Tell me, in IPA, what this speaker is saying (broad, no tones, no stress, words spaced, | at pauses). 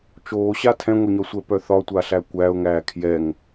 t͡ʃoːɕa tʰɛ̃ŋʷɛɲɒsʷɛ pœθɒtʷaɬæ kʷæʊ̯ŋæː kʰjɛŋ